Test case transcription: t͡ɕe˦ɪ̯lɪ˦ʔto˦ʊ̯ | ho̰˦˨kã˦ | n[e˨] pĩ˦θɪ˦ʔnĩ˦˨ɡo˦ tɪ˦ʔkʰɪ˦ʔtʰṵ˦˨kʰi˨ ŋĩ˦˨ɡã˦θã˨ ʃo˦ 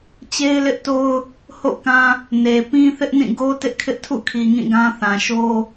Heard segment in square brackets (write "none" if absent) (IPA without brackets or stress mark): e˨